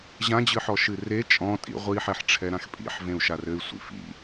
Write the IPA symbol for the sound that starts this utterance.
ʑ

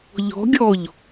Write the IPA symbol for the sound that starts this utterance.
ʎ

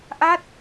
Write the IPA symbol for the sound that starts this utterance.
ʔ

